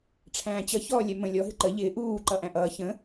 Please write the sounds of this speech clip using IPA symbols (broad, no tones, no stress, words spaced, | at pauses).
ʈ͡ʂʰæ̃ːt͡ɕʌ çɔːlʲɛmə̃lʲɔ ɦɪǃə ʎɪː ʔuː ǃʌʔæ̃ʔʌː çə̃